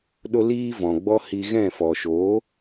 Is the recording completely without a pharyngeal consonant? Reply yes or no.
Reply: yes